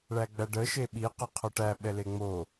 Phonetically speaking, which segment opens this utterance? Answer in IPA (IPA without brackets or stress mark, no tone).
ɭ